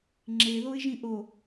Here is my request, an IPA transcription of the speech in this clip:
ŋ͡ǁ e ð o ɪ̯ ʒ ĩ ʔ o

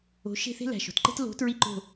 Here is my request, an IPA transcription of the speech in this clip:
o̤˨˥ ʃ e̤˦˨ θ e̤˦ l æ̤˨˩ ʃ o̤˦˨ t ǃ e̤˦ t l o̤˨˥ t ɹ i˦˨ ǃ o̤˦˨

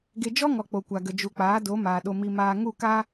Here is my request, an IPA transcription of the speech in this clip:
ɡ e˧ d͡ʒ ɔ˦ ŋ ɔ˨ k͡p o˨ kʷ a˨ ɡ ə˨ d͡ʒ u˨ k͡p aː˨˦ d o˨˦ m aː˨ ɗ o˧ m i˧ m aː˧ ŋ u˦˨ k aː˦

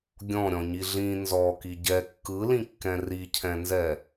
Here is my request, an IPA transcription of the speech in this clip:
ɡʲ ɔ̃ ɾʲ ɔ̃ ɲ i ɮ ĩ n z ɔ k i ɟ ɛ kː ɯ l ĩ kː ɛ̃ r i cʰ ɛ̃ n z ɛ

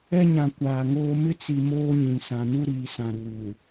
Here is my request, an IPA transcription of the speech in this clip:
ɛ˦ ɲ ã˨ kʷ aː˨ ŋ oː˦ m ɪ˦ t͡s i˨ m oː˦ ɲ ĩ˨ s ã˨ n u˦ ɾ iː˨ s ã˨ ɾ uː˨

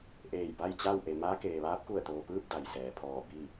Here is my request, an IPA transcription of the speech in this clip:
ʔ eː˧˩ j b a˥˨ j t͡ɕ a˥˨ w ʔ e˩ m aː˧˥ k eː˩ ʋ aː˧˥ p̚ k u˧˩ ə̯ t̪ oː˩ p ɯː˥˨ p̚ d a˩ j s ɛː˩ pʰ ɔː˧˩ b i˥˨

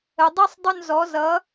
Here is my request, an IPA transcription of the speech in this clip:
ə˩˧ dˤ ɯ˥ sˤ dˤ ʏ˥˧ n z ɔ˨˥ z ʌ˨˥

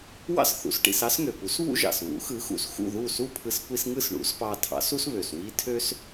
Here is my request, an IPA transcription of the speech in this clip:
w ɑ̰˥ s θ ṵ˩˥ s ʈ ḭ˧ s ɑ˥ s ŋ ø˩ p u˩˥ s β ṵ˥ ʒ ɑ̰˩ s β ṵ˩˥ x ɯ˩˥ x ṵ˩ s x ṵ˥˩ ð u˥˩ s u˥˩ pʰ ɯ˧ s kʷ i˧ s ŋ ɯ˥˩ s ɳ ṵ˩˥ s p ɑ˧ tʰ ɑ̰˩˥ s u˥ s β ø˩ s w i˥ tʰ ø˥ s

